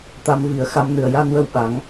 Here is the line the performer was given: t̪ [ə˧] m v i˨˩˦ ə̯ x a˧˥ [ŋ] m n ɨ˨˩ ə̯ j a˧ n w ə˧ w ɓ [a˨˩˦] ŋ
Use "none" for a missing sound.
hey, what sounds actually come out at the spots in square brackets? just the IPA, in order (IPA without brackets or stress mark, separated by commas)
a˧, none, a˨˩˦